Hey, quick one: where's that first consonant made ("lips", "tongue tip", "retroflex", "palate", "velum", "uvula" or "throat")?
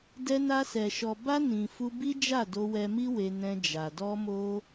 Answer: tongue tip